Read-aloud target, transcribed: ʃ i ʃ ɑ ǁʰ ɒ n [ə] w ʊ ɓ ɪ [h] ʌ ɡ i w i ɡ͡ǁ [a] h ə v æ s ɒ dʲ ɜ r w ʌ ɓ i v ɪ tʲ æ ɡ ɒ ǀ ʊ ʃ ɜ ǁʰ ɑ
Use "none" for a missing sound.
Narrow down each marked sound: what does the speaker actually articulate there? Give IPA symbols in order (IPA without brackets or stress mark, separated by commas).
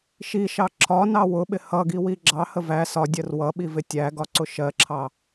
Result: ɑ, h, ɑ